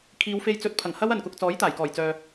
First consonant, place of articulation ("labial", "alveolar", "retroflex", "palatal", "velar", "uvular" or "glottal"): velar